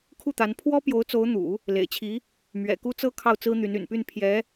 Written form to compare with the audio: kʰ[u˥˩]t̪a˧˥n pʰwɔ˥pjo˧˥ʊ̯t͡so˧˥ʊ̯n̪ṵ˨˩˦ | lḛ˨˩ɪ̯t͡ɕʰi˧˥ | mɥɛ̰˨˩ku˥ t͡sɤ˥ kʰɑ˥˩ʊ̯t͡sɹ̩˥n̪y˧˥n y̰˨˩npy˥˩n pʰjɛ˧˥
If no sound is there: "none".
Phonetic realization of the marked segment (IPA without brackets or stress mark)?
u˥˩